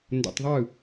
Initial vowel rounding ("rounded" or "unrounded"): rounded